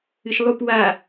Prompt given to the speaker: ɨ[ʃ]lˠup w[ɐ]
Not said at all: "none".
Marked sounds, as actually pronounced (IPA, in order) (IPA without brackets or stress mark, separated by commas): ʃ, a